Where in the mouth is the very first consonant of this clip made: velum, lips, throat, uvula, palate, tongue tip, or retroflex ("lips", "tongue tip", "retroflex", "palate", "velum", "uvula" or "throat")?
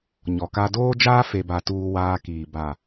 palate